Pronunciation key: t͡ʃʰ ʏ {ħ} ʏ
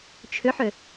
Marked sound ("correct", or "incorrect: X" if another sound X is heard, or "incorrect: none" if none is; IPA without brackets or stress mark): correct